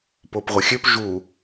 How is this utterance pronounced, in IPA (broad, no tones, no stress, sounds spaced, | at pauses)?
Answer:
p o p ʁʷ ɐ xʲ ø p ʒ u